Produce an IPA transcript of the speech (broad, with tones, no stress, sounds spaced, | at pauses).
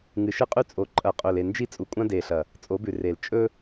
ŋ ɨ˨ ʃ ɨ˦ qʼ ʉ˦ t͡sʼ o˨ ǃʼ ɐ˨ qʼ ɵ˨ l e˨ n d͡ʒ i˦ t͡sʼ u˨ kʷʼ ã˦ d e˨ ɬ ɐ˨ | t͡sʼ o˨˦ b ʉ˨ r e˨ l t͡ʃʼ ɵ˦